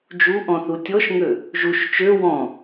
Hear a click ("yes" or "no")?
no